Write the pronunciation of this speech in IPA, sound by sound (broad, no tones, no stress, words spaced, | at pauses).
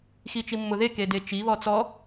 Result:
xit͡ʃimːʊðe kedet͡ʃi βɔt͡sɔ